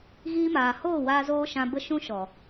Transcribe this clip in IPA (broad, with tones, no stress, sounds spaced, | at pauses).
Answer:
ɣ iː˧ m aː˨ h oː˦˨ w aː˧ z oː˧ ʃ ã˧ b ə˦ ʃ ũ˦ ʃ ɔ˨